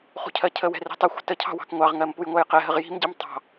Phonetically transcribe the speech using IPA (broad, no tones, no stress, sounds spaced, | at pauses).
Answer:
χ ṳ cʰ ɜ cʰ ə w ɛ̤ r i̤ tˤ ə xʷ ə̤ t ə cʰ ɑ̤ w ɑ̤ k ŋʷ ɑ ʁ ŋ ɜ m p u j ŋʷ ɜ j q ɛ ɦ ə ʁ j i̤ m ɟ i m tˤ ɑ̤